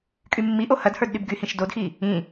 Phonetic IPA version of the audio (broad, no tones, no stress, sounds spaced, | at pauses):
kʼ y mː i ʔ o h ɐ d h ə˞ d ɗ y b ɡ y h ĩ ʃ d o d x i | ĩ